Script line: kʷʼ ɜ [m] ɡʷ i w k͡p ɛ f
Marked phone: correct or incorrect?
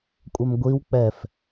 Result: correct